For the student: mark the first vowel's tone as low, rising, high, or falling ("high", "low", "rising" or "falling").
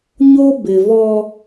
high